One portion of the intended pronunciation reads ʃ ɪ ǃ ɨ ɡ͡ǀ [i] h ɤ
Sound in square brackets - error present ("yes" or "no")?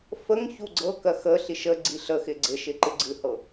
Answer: yes